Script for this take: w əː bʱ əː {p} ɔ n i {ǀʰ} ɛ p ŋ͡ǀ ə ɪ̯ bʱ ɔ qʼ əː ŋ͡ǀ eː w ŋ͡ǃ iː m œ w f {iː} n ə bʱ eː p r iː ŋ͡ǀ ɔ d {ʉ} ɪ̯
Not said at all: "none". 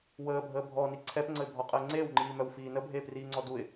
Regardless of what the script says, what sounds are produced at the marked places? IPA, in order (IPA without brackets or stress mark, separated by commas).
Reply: bʱ, ǀʰ, iː, u